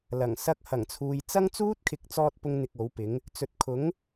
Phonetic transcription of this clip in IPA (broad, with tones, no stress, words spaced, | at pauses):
lɐ˨˩ŋ sɐ˧k̚hɐ˨˩ŋt͡sʰuː˨jt͡sɐ˥ŋ t͡suː˥t̚kʰɪ˨˥k̚t͡sɔː˧t̚ pʊ˥ŋn̪ɪ˧k̚o˨˥wpɪ˨˥ŋ | t͡sɵ˨t̚kʰʊ˨˥ŋ